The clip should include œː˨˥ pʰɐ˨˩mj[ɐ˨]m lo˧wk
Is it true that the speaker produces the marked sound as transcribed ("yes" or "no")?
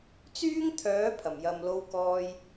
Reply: yes